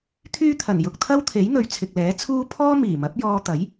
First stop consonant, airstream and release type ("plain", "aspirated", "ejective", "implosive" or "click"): aspirated